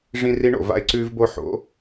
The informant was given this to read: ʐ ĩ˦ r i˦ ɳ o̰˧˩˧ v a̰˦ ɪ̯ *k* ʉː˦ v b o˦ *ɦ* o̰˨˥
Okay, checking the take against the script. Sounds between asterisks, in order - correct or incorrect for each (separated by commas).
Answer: incorrect, incorrect